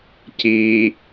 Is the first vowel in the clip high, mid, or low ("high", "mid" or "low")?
high